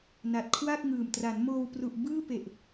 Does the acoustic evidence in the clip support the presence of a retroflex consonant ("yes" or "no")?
no